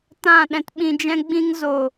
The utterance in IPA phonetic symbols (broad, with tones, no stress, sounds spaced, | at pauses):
t ã˦˨ ɗ ɛ̃˧ t ɓ ĩ˧ d͡ʒ ɛ̃˦ ɡ͡b ĩ˦ ŋ z o˦˨